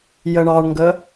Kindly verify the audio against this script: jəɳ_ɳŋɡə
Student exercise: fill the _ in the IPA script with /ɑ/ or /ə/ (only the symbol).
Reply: ɑ